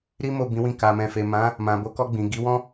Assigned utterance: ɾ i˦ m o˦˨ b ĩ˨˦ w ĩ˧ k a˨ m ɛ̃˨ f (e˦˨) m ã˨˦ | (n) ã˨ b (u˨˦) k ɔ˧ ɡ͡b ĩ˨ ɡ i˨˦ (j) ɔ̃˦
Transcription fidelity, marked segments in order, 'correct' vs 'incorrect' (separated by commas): incorrect, incorrect, incorrect, incorrect